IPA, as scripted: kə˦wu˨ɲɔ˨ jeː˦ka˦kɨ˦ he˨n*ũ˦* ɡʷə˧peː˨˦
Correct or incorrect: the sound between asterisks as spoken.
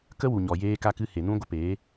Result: correct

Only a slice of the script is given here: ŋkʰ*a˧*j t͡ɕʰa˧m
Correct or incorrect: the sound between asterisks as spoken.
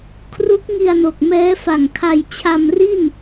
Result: correct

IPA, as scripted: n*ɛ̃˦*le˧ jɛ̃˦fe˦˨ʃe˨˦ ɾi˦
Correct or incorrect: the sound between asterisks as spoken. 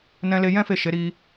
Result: incorrect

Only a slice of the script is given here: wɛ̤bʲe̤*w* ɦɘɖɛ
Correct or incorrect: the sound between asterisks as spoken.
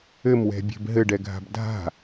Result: incorrect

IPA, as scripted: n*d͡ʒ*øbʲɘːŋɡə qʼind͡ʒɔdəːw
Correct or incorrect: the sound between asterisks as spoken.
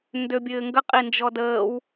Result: incorrect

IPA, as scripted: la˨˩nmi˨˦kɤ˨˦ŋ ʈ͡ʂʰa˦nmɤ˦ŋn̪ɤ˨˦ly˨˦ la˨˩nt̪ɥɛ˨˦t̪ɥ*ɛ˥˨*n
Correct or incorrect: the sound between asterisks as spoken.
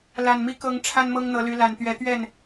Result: correct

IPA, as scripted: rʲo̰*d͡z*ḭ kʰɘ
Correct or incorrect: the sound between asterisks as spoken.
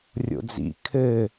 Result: correct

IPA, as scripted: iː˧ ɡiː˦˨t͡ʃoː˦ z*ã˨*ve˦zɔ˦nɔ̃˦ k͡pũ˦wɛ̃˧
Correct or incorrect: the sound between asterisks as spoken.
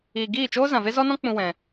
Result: correct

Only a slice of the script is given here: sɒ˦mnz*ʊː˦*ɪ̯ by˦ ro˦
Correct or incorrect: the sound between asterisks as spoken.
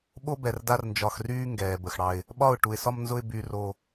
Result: incorrect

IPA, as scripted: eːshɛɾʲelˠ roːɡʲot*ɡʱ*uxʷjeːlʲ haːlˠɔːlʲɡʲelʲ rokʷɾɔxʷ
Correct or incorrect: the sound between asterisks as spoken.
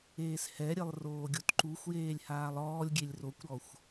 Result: incorrect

